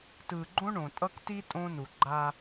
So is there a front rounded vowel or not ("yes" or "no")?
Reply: no